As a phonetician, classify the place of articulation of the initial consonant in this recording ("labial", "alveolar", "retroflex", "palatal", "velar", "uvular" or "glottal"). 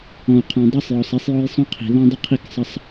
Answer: uvular